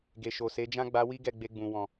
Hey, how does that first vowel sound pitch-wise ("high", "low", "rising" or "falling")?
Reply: low